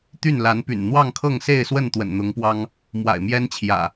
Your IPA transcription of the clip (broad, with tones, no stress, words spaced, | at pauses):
t̪y˥˨nla˨˦npy̰˨˩n n̪wɑ˥˨ŋkʰɤ˥˨ŋse˥˨ɪ̯swə˥˨n t̪wə̰˨˩nn̪ʊ˨˦ŋpwɑ˦ŋ | mwa̰˨˩ɪ̯mjɛ˦nt͡ɕʰjä̰˨˩